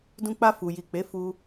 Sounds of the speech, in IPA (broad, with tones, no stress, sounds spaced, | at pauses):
d ũ˧ k͡p a˧ f u˨ j i˨ k͡p e˨˦ f u˧